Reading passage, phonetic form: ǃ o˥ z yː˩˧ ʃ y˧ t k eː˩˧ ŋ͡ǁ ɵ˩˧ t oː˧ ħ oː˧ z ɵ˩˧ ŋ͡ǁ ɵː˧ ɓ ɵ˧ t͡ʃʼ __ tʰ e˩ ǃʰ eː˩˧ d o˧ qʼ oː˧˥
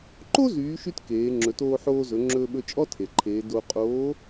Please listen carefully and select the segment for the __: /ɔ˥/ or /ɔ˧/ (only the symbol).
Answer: ɔ˥